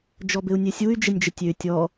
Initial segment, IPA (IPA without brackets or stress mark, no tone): d͡ʒ